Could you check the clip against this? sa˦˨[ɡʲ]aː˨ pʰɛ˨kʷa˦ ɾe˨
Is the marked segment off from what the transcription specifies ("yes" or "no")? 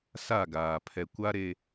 yes